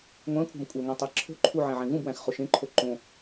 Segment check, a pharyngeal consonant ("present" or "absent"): present